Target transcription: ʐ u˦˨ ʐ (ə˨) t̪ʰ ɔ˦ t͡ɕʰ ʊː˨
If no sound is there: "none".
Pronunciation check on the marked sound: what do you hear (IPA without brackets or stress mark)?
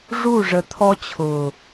ə˨